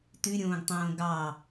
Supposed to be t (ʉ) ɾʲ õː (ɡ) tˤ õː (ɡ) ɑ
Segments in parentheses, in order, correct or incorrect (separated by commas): correct, correct, correct